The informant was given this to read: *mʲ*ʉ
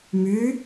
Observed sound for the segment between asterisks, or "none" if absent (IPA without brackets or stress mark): m